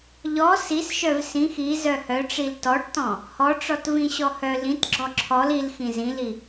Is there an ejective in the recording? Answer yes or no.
no